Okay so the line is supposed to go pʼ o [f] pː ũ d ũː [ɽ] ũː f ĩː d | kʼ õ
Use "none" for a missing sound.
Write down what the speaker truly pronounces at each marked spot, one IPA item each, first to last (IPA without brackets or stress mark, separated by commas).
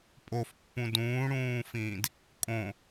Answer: f, ɽ